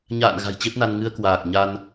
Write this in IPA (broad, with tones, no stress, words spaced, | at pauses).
ɲa̰ː˧˨n ɣa̤˨˩jt͡ɕe˦˥p̚na˧n ŋɨ˧ə̯ kwaː˨˩k̚ ɲa˧n